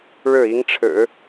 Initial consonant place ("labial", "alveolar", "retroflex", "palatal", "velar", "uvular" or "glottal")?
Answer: retroflex